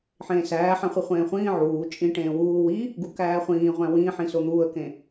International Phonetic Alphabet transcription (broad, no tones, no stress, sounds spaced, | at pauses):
ħ ẽː s æː ħ æ̃ χʷ i χʷ ẽː χʷ ĩː ʕ uː t͡ʃʼ ĩ ʈ ẽː w uː w i | ɡ u k æː χʷ ĩː ʁʷ æ̃ w ĩː ħ ĩ s o n̪ uː ə̯ k ẽ